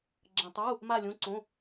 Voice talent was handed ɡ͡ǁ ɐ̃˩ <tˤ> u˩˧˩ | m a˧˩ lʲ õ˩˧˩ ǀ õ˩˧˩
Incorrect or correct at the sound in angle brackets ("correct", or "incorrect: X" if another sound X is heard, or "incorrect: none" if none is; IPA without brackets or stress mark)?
correct